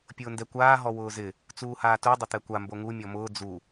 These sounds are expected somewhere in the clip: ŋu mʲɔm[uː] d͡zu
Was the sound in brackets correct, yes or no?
no